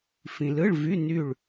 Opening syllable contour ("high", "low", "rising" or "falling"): low